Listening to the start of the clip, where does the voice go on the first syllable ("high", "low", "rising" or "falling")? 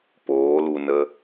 rising